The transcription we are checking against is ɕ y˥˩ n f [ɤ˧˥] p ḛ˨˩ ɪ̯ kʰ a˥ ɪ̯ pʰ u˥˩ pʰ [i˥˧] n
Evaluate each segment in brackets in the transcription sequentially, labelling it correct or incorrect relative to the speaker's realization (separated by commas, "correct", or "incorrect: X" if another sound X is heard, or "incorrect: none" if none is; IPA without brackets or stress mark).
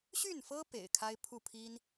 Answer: incorrect: ɤ˥, incorrect: i˥